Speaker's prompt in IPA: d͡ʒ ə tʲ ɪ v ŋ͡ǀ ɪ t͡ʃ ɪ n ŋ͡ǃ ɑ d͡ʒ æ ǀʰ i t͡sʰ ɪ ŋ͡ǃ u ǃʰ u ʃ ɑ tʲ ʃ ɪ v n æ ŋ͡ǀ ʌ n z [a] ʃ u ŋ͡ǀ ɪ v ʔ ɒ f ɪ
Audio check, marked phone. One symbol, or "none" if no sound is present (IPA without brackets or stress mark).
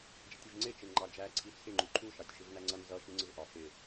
ʌ